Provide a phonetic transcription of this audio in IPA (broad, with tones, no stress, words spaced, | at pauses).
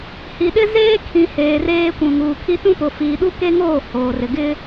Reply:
hi˨ɗɪ˦ zeː˦ kʰĩ˨ heː˨reː˦kʷũ˨ ŋuː˨kʰi˦ tũ˦pʊ˨ fiː˨ɗu˦ke˦ŋoː˦˨ hoː˨rɪ˨ ɡɪ˦